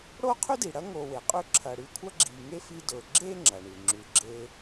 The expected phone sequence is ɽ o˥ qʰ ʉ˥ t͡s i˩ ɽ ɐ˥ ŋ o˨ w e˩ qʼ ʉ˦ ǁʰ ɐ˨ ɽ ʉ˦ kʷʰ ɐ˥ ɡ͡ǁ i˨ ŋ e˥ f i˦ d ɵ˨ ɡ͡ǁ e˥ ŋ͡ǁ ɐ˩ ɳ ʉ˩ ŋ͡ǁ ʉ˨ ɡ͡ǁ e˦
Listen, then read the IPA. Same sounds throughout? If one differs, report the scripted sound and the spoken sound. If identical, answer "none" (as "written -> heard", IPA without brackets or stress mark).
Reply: t͡s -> d